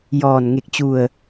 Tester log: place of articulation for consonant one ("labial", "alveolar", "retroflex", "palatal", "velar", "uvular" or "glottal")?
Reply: palatal